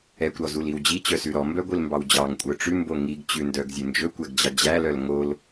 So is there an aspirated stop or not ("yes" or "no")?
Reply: no